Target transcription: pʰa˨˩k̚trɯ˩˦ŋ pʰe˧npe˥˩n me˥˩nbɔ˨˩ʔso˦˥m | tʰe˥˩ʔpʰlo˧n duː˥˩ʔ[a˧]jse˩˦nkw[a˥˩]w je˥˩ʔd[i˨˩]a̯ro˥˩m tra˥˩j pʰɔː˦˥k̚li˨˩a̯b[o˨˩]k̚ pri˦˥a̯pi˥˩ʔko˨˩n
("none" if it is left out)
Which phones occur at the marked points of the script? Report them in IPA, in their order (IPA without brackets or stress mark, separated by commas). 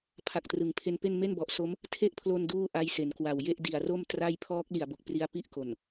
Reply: a˦˥, a˨˩, i˨˩, o˨˩